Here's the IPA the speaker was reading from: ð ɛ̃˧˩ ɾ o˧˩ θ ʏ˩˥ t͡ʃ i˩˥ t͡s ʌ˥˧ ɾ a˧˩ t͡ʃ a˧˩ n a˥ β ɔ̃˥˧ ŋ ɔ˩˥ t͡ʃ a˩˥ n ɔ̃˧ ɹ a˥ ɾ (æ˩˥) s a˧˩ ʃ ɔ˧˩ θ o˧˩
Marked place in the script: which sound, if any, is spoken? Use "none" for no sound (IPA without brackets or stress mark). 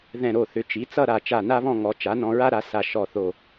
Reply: a˩˥